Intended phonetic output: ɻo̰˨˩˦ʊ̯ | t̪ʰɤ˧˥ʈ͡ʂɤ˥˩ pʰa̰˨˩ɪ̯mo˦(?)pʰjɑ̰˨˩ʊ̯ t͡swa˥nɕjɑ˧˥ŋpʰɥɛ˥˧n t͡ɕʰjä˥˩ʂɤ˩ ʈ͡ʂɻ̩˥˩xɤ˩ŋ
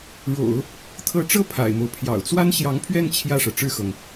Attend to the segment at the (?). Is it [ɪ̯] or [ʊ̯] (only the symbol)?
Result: ʊ̯